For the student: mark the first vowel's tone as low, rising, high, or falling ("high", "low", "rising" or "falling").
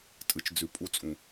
low